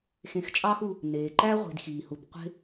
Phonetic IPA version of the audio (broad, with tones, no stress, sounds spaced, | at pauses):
x ẽ˨ x t͡ʃʼ ɑː˦ x u˨ | n eː˩ ǃ æ˥ ʁʷ i̤˨ d x iː˩ h u˨ b qʷ e̤˦